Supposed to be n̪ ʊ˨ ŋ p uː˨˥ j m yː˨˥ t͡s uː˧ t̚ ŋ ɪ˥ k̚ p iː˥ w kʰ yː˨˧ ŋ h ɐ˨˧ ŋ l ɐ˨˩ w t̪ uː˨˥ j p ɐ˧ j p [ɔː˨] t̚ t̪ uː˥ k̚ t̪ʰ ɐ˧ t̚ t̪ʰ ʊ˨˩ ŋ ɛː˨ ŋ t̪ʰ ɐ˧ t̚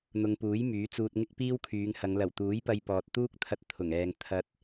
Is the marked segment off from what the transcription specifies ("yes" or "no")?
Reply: no